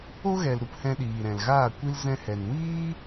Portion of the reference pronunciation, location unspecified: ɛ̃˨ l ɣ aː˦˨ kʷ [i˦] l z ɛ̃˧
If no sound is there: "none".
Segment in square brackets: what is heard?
i˦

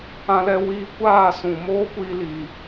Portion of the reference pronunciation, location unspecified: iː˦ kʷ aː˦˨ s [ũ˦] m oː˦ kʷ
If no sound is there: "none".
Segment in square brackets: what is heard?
ũ˨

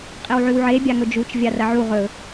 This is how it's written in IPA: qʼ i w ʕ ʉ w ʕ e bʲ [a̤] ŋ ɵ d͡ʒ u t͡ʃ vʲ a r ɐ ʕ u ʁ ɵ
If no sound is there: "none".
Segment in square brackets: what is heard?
a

